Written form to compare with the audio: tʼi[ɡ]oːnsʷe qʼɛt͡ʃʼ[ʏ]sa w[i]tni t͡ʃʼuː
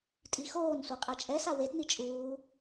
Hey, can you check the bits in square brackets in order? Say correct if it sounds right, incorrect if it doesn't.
incorrect, incorrect, incorrect

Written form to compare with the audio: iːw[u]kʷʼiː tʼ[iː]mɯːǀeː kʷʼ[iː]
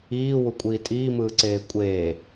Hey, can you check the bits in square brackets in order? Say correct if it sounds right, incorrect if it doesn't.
correct, correct, incorrect

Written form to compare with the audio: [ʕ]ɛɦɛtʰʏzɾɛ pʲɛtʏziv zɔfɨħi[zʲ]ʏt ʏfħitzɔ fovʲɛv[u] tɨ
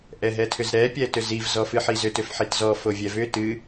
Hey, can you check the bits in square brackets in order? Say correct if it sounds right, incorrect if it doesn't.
incorrect, incorrect, incorrect

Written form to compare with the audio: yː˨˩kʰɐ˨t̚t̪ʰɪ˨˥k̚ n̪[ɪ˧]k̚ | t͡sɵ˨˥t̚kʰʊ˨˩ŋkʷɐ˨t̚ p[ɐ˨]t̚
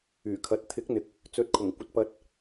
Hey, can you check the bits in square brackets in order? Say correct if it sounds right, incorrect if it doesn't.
incorrect, correct

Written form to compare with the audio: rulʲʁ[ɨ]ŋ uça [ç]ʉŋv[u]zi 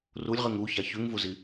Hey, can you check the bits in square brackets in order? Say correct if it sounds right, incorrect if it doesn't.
correct, correct, correct

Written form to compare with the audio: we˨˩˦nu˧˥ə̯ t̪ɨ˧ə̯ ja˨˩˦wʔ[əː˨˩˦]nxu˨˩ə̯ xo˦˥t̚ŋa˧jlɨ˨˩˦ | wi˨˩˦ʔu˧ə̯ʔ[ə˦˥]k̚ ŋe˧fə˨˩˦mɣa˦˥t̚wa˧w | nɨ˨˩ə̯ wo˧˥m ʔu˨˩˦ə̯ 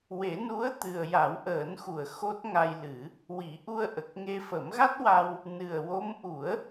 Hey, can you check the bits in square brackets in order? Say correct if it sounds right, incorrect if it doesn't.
correct, incorrect

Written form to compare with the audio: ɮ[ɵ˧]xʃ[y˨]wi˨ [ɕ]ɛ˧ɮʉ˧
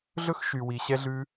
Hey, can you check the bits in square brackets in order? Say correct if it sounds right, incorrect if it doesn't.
incorrect, correct, correct

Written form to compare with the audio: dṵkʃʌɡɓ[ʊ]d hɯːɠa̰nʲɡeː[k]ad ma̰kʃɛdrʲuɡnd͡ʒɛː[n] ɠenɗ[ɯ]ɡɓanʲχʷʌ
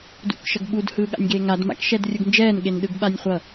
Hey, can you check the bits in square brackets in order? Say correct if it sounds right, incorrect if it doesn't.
incorrect, incorrect, correct, correct

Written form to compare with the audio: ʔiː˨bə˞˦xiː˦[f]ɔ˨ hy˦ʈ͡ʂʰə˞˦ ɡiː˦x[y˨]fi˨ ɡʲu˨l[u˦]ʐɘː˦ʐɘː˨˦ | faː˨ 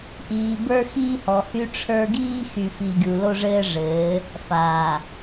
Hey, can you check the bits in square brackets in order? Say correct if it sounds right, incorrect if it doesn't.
incorrect, correct, incorrect

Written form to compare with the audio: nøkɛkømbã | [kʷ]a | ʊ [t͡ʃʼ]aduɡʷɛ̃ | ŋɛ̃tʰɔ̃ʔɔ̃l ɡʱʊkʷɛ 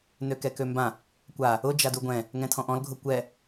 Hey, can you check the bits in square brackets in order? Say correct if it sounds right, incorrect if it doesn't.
correct, incorrect

